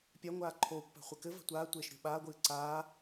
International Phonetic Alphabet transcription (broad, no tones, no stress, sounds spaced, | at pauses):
pʲ a ŋʷ aː ǃʰ oː kʷ p a̤ χʷ ɘ k ɘ v a̤ tʷ aː tʷ eː ʃ ɾʲ o̤ ɓ aː ɡʷ ɨː ǀ aː